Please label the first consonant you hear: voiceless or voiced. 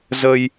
voiced